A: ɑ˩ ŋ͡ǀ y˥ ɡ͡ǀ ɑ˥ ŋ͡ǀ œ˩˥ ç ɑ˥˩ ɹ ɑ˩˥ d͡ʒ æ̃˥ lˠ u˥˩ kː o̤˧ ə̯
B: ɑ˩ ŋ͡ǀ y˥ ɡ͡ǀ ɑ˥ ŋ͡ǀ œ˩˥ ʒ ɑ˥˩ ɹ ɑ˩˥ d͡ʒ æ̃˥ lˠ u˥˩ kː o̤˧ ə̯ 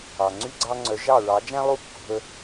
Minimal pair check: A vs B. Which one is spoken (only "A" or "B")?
B